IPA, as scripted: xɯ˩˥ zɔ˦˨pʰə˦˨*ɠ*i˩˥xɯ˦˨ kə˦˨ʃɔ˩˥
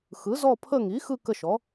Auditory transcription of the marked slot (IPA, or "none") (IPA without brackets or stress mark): ŋ